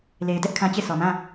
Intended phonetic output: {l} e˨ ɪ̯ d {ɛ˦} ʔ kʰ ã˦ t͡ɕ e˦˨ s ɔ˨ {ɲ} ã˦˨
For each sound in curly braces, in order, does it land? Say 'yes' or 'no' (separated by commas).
yes, yes, no